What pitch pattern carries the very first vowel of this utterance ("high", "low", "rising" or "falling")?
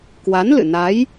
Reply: rising